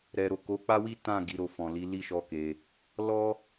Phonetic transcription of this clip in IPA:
ɾ ɛ˨ ɾ o˨ k o˨˦ k͡p a˦ w i˦ t ã˦˨ ɡ i˨˦ ɾ o˧ f ɔ̃˨ l i˨˦ l i˦˨ ʃ ɔ˧ k e˧ | l ɔ˦

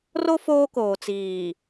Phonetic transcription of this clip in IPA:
r o˦ f oː˦ k oː˨ t͡s iː˨

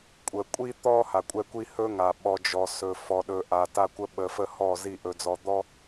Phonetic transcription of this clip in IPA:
kʷʼ ə˨ kʷʼ i˦ t̪ ɔ˦ h a˨ kʷʼ ɛ˦ kʷ i˦ h ɵ˦ ŋ a˨ ɓ ɔ˨ d͡ʒ ɔ˨ s ɵ˨ f ɔ˨ ɗ ɵ˨ ʔ a˨ t a˦ kʷ ə˦ ɓ ə˨ f ə˦ h ɔ˦˨ z i˦˨ ʔ ɵ˨ d͡z ɔ˨ d̪ ɔ˦

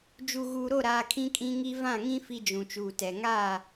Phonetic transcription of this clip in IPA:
d͡ʒ u˨ ɣ uː˨ ɾ o˦˨ ɾ aː˨ kʰ ĩ˦ kʼ ĩ˦ ŋ i˦ v ã˦˨ ŋ ĩ˦ f i˦ d͡ʒ ũ˨ t͡ʃ uː˨ t ɛ˨ ŋ aː˦˨

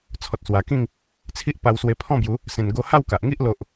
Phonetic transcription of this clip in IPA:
t͡sʰ ɔ˨ t̚ s w a˨˩ k ĩ˥˧ ŋ | t͡sʰ i˦ ʔ p a˧ w s w e˧ pʰ ɔ̃˥˧ b j u˨˦ | s ẽ˨˩ n ɡ o˧ h a˥˧ w k a˨ ʔ ŋ i˦ ʔ l o˨ ʔ

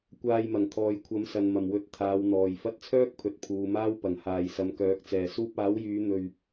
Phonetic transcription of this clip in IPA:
kʷ aː˧ j m ɐ˨˩ ŋ t̪ʰ ɔː˨ j kʷʰ ɐ˨˥ m s ɐ˨ n m ɐ˨˩ m w ɵ˨˥ t̚ t̪ʰ aː˨˧ w n̪ ɔː˨ j f ɐ˧ t̚ t͡sʰ œː˥ k̚ pʰ ɵ˨ t̚ pʰ uː˨ m aː˥ w p ɐ˨˩ ŋ h aː˨˩ j s ɐ˨ m k œː˨˥ k̚ t͡s ɛː˨˩ s uː˧ p̚ aː˨˥ w j yː˨˧ n̪ ɵ˧ ɥ

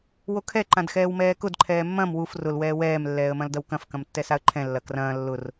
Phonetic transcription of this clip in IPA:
w o kʰ ɛ ǃ ã d x ɛː w m ɛː k ʊ d ǃʰ ɛː mː ɐ̃ m w u f r ʊ l w ɛː w ɛː m lː ɛː ə̯ m ɐ̃ l d ɐ w k ɐ̃ f k ɐ̃ m tː ɛ s a ə̯ ǃʰ ɛ̃ lː ɐ k r ɐ̃ː lː ʊ r

